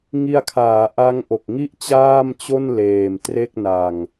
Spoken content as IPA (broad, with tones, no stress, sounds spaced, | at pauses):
ŋ i˧ a̯ kʰ aː˩˦ ʔ a˦˥ ŋ ʔ o˨˩ k̚ ŋ i˥˩ ʔ t͡ɕ aː˥˩ m t͡ɕ o˥˩ n l eː˨˩ m t r e˥˩ k̚ n a˨˩ ŋ